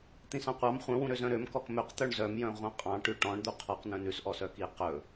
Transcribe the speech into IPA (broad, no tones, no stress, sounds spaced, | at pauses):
t̪ ĩ s ɑ̃ qʷ ɑ m χʷ œ̃ w ũ ɾ ø z œ̃ ɾ ø m k ɔ k m ø q t̪ œ ɳ z œ m j œ̃ ʁʷ ɑ̃ qʼ ɑ̃ ʈ ʉ ʈ ɔ̃ ɳ d̪ u qʰ ɔ q n œ̃ n ʉ s ʔ ɔ s œ k i q ɵ